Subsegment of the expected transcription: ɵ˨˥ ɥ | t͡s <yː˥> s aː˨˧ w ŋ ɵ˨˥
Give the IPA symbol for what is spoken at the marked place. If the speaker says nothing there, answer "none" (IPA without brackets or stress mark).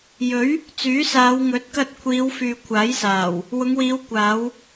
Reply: yː˨˥